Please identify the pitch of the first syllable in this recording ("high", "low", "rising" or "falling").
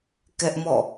high